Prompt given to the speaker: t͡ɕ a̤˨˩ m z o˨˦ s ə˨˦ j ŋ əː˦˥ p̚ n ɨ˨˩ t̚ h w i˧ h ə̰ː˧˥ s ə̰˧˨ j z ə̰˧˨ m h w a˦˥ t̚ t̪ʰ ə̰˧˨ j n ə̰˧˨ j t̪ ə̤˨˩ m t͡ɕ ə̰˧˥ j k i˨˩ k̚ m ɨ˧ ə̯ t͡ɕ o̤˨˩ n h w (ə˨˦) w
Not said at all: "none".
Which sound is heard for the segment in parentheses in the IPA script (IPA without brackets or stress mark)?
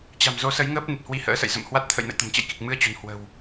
ə̤˨˩